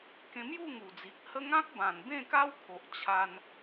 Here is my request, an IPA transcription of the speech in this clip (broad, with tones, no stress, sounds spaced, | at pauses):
k ẽ˧ m j u˥˧ ŋ u˨˩ d͡z i˨ k̚ h ə˦ ŋ ã˦ k̚ b ã˨˩ n b ẽ˥˧ k a˦ w kʰ o˨ ʔ t͡ɕʰ a˧ n